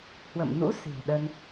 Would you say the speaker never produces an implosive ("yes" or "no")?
no